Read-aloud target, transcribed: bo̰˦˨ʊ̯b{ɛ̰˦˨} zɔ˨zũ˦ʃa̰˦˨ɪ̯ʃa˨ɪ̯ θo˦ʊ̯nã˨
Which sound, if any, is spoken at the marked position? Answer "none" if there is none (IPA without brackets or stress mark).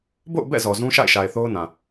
ɛ̰˦˨